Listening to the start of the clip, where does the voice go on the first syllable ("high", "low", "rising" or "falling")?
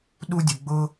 high